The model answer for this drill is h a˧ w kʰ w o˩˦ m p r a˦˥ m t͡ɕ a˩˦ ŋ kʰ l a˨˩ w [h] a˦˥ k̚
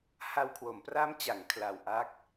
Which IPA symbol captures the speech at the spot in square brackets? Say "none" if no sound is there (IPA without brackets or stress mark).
ʔ